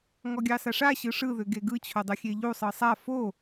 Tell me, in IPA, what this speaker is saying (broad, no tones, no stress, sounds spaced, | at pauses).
ŋ ɔ ɡʲ ɑ s a ʂ a ɕ ɯ ʂ ɯ ð ʏ ɡ e ɡ ɯ t͡ɕʰ o dˤ ɯ xʲ e ʎ u sˤ ɯ sˤ a f o